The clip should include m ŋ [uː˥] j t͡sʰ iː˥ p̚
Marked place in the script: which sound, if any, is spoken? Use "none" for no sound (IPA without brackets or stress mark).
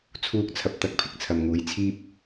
uː˨˥